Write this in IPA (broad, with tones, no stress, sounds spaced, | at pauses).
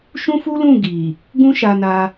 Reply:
ʃ ũ˦ f u˦ l ũ˦˨ ɡ i˨ | ɡ ũ˦ ʃ a˧ n a˧